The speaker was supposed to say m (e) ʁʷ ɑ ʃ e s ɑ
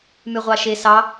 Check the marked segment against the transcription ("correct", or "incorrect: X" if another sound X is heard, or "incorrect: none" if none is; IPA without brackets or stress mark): incorrect: y